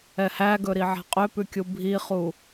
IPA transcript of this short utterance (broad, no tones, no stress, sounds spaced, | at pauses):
ɛ h æ ɡ ɵ ɾ i ʕ æ̤ qʼ ø p ʉ kʲ u bʱ i χ u